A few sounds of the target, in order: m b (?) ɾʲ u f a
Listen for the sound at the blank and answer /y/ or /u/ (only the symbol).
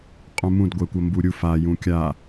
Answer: u